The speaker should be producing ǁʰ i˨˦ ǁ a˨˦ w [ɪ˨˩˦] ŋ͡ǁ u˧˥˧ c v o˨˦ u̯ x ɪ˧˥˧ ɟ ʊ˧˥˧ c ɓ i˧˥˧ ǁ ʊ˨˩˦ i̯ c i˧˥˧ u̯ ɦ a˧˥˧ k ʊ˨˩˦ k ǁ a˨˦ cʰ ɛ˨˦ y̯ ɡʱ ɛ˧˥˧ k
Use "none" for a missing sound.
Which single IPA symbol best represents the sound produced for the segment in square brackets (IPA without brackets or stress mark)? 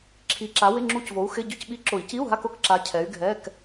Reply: ɪ˧˥˧